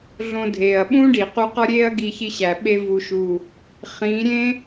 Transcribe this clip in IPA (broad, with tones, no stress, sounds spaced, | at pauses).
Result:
ɮ õ˧ dʱ eː˨ ɐ̯ ɓ ũː˦ ɖ i˨ q u˧ q ɒ˦ ɾʲ eː˦ ɐ̯ ɡ i˧ ç i˧ ɕ æ˨ ɓ e˧ v u˨ ʃ u˨ | χ ĩː˨˦ ɾʲ ẽ˦